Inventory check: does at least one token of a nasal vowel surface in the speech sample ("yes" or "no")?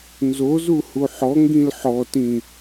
yes